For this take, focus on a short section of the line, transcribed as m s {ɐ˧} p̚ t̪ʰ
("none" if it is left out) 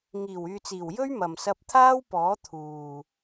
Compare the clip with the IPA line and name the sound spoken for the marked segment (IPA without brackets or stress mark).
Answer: ɐ˧